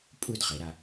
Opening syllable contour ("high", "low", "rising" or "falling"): falling